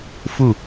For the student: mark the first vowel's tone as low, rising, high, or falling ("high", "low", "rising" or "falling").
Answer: falling